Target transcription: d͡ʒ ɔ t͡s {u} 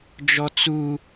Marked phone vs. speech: correct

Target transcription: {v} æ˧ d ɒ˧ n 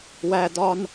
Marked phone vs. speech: incorrect: w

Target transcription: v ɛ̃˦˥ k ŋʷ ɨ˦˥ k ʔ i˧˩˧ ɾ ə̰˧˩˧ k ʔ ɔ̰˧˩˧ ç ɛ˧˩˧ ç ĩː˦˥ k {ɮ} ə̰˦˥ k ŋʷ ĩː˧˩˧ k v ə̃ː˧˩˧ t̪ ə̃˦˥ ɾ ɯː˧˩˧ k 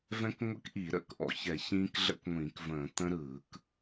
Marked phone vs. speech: correct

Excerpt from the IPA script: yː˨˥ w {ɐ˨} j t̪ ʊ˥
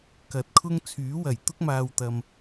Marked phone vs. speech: incorrect: ɐ˨˩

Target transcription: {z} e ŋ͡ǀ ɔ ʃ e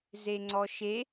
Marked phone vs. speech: correct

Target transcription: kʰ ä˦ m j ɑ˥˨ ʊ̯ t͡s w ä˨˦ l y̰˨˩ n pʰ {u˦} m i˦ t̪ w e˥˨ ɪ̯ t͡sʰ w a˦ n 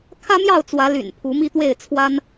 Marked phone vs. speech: incorrect: u˨˦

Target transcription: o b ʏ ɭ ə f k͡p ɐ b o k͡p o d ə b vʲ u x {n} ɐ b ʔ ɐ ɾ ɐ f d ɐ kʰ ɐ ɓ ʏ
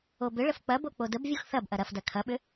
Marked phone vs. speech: incorrect: θ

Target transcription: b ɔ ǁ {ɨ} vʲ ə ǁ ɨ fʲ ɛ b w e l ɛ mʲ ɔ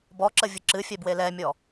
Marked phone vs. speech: incorrect: ə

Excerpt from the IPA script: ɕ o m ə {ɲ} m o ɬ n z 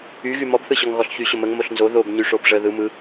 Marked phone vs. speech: incorrect: ŋ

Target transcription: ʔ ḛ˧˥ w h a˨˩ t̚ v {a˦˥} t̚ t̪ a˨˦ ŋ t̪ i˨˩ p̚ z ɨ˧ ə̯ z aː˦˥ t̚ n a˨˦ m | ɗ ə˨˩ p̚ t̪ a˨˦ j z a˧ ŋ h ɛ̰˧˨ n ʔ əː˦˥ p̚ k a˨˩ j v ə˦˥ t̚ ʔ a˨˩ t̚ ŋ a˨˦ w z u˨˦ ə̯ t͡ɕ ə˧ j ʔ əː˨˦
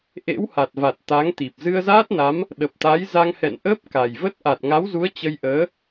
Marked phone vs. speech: incorrect: a˨˩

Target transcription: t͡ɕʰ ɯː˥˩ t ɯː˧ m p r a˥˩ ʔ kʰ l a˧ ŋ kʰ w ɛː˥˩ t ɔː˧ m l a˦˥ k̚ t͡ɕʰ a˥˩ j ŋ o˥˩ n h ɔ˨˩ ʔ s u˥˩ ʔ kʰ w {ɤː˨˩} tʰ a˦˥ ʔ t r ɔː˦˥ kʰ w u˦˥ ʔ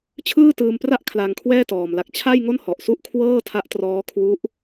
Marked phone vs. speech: incorrect: ɤː˥˩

